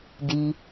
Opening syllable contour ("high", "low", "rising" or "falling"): low